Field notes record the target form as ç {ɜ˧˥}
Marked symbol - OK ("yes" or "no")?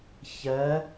yes